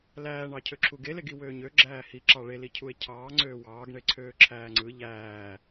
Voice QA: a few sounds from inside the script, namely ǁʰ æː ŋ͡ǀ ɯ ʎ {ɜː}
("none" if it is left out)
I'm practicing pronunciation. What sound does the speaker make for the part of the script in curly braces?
æː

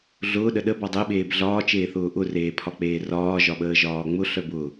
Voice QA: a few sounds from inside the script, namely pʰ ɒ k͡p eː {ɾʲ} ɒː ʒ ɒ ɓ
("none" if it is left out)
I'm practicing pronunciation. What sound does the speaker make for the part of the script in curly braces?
r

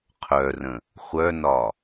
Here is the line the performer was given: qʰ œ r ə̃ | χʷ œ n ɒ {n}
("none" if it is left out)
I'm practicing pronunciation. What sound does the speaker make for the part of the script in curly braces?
none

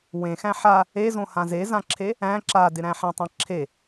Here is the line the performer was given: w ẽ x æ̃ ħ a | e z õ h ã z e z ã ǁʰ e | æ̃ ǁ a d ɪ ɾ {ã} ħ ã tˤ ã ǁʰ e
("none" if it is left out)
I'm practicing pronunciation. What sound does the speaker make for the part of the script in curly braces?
æ̃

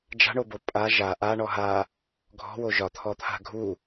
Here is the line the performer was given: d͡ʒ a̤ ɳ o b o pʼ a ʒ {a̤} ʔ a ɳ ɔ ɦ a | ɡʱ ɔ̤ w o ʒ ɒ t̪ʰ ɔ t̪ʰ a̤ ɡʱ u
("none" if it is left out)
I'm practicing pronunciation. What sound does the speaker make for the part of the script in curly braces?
a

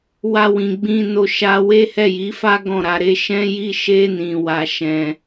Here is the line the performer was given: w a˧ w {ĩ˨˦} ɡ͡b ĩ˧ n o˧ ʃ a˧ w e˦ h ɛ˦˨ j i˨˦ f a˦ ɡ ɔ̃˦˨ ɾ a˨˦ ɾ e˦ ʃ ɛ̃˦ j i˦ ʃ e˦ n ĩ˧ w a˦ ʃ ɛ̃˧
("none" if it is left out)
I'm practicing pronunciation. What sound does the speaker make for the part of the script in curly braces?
ĩ˨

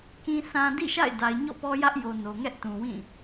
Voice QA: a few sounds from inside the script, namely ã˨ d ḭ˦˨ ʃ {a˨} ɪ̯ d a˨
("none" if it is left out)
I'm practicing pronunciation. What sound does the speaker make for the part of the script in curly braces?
a̰˦˨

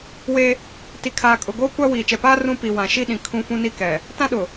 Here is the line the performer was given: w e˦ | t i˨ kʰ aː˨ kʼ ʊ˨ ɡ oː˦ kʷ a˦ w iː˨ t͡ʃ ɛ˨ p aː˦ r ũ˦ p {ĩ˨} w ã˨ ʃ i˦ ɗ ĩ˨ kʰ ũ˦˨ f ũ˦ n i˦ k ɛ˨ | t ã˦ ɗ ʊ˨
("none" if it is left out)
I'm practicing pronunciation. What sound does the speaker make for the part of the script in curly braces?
i˨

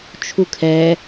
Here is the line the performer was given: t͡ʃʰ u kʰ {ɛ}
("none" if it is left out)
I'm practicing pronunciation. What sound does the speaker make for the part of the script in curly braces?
ɛ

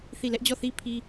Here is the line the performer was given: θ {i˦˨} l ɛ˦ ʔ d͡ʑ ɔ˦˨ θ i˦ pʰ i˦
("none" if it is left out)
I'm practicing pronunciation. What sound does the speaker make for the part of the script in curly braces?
i˦˨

